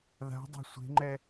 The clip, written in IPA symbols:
ð a̤ dˤ e̤ sʷ e̤ ŋ͡ǃ ɛ

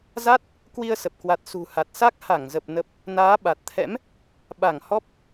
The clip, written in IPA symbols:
z a˦˥ t̚ | k w i˧ ə̯ s ə˨˩ p̚ k w a˨˩ t̚ s ṳ˨˩ h a˨˩ t̚ s a˦˥ k̚ h a˧˩ ŋ z ə˨˩ p̚ n ə˨˩ p̚ | n aː˨˦ ɓ a˨˩ t̚ t̪ʰ ɛ̰˧˥ m | ɓ a˧˩ ŋ h ɔ˦˥ p̚

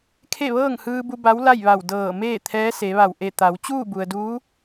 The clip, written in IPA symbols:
kʰ e˥˨ ʋ ɤː˥˨ ŋ h ɯː˧ b u˧ b a˧˥ w l a˥˨ j ʋ a˧˩ w d ɤː˧˩ m eː˥˨ t̪ʰ ɛː˧˥ s e˩˧ ʋ a˧˩ w ʔ e˧˩ t̪ a˩˧ w t͡ɕ uː˥˨ b u˩ ə̯ d uː˧˥

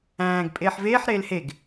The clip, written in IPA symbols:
æ̃ː ɡ pʼ eː ħ v eː ħ ɾ eː l h e ɡ

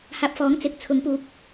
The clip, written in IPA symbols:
h aː˧ p̚ f ɔː˨˥ ŋ t͡s ɪ˨˥ k̚ t͡sʰ ʊ˨˥ ŋ p uː˨ k̚

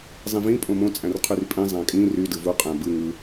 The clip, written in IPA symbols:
zˤ ĩ v ĩ pʼ õ m õ t͡sʼ æ̃ r qʰ y r pʼ ĩ zˤ æ̃ kʼ ĩ r y d ɯ v u qʼ æ̃ b ɯ ŋ ɯ

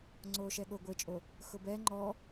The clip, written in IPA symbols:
ŋ͡ǀ oː ʃ ɛ ɠ o ɡʷ e t͡ʃʼ o | x ʊ b ɛ ŋ͡ǃ ɔ

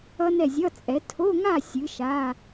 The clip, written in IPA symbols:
ʌ˦˥ n ɛ˥˨ zʲ ʌ˧˥˧ t͡sʼ ɛ˨˥ tʰ o˧˥˧ ŋ a˥˨ sʲ ɨ˨˥ ʃ a˧˥˧

